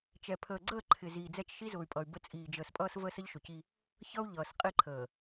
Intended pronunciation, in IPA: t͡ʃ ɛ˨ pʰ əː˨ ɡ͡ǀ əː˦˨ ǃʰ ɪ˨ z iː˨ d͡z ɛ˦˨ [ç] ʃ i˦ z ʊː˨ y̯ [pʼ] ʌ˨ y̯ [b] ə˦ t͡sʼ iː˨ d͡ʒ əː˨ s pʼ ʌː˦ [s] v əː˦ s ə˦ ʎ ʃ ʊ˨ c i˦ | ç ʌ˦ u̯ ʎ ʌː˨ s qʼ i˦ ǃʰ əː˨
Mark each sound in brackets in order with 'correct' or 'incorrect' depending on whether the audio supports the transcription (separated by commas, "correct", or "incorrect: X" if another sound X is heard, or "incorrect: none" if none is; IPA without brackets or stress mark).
incorrect: t͡ʃ, correct, correct, correct